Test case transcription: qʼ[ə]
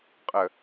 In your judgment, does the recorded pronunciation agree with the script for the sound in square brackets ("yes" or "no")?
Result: yes